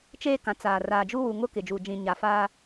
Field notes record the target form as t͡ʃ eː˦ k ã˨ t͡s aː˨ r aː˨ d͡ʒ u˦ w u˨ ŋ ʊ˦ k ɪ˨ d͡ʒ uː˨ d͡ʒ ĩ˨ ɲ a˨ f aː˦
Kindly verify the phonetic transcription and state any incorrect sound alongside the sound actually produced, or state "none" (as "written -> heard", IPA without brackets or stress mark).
none